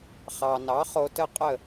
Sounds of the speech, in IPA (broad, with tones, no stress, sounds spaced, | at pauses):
χ ɑ˩ n ɑ˩˥ χ o˧ t ə˥˩ qʼ ə˥˩